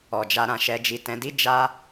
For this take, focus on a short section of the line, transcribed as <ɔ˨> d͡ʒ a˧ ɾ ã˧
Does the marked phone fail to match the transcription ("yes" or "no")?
no